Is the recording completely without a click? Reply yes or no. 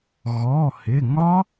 yes